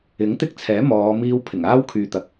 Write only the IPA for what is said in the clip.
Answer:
ɪ˨˥ŋt̪ɪ˥k̚t͡sʰɛː˨˥ mɔː˨˧ miː˥w pʰɪ˨˩ŋaː˥wkʰyː˨ t̪ɐ˧k̚

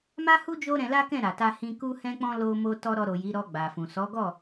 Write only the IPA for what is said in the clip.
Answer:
ma˦hu˦ d͡ʒo˦ɾɛ̃˧la˦kɛ̃˦˨ ɾa˨ta˧ hĩ˧ ku˧hɛ̃˧k͡pɔ̃˧ lo˧ mo˧ tɔ˧ ɾɔ˧ ɾo˨ ji˨˦ɾɔ˧ɡ͡ba˨fũ˨ sɔ˨˦ɡɔ˦˨

